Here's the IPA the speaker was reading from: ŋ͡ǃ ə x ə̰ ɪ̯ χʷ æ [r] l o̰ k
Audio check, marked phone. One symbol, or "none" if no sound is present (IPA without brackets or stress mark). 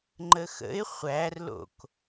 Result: r